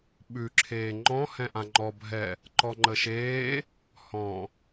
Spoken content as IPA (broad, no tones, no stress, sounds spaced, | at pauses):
ɓ ʉ ǁʰ eː ŋ͡ǃ ɔ̃ h ɛ̃ ʔ ã ŋ͡ǃ ɔ bʱ ɛ | ǃ ɔ ŋ͡ǃ ə ʃ eː | h ɔ̃